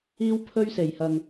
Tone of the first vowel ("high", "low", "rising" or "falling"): high